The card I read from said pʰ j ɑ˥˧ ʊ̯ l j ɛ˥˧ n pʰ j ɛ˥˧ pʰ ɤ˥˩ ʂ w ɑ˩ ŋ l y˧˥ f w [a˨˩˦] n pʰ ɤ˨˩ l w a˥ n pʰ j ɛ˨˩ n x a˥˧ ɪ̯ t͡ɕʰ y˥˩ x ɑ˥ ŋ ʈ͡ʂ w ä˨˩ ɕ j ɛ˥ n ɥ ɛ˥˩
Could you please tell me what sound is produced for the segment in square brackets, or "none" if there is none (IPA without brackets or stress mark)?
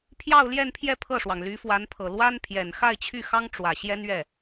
a˧˥